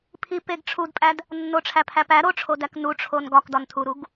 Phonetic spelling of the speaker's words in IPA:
pʰ i p e ɡ ʈ͡ʂʰ u d pʼ æ d | nː o ʈ͡ʂʰ æ pʰ æ p æ ɾ o ʈ͡ʂʰ o d æ k n u ʈ͡ʂʰ o n ɡ ɒ k d ɒ n tʰ u ɾ u ɡ

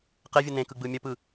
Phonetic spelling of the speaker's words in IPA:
q e vʲ ɯ n ẽ k ɯ ɡ͡b ɯ mʲ ə p ɯ

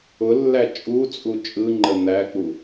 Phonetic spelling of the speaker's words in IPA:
ʊ lː æ t͡ʃʼ u t͡sʼ u t͡ʃʼ ɯ ŋ͡ǃ ə n̪ æ k͡p u

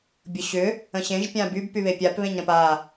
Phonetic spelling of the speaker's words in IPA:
bʲ ʊ ɕ ʏ | ə̃ ɕ ẽ ʒ pʲ ã b y b p y β e pʲ a p β ẽ ɲ ɾ ə̃ p a

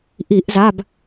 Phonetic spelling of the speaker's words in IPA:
ʔ i˧˩˧ ʔ z a˩˧˩ b

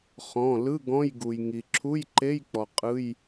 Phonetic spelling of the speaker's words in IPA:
χ ɔ̃˩˧˩ l ɯ˧˥˧ ɡ ɔ̃˧˥˧ j ɡ u˩ j ŋ i˩ ǁʰ u˧˥˧ j ǃ e˧˥˧ j k͡p ɔ˩ qʼ ɯ˧˥˧ j

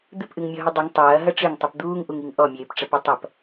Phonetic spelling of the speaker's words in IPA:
d̪ ɨ p ʔ ɨ ŋ mʲ ɔ ɦ ɨ dˤ ɨ ŋ tˤ ɐː ɦ ɐ ʈ͡ʂ ɨ ŋ tˤ ɨ p d̪ uː ŋ ʔ u ŋ i ŋ ʔ ɔ mʲ eː p ʈ͡ʂ ɐ p ɐ tˤ ɐ p

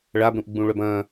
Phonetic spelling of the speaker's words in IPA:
ɭ a b ɾ ũ ʔ ɡ͡b ũ ɭ œ b ɐ̃ː

